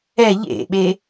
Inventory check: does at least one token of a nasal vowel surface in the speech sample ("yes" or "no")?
no